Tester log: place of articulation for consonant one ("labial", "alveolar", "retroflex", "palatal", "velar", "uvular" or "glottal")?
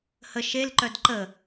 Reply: glottal